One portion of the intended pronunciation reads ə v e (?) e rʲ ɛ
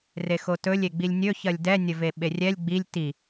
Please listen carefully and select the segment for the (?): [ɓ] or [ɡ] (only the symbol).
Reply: ɓ